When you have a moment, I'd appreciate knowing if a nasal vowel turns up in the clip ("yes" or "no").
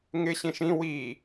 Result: yes